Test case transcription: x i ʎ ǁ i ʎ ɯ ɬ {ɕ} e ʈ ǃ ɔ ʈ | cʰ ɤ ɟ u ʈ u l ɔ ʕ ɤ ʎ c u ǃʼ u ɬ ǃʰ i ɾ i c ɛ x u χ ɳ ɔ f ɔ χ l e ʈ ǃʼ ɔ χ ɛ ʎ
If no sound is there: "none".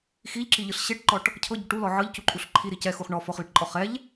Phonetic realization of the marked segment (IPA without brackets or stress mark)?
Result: ɕ